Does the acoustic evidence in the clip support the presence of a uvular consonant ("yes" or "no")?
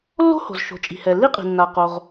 yes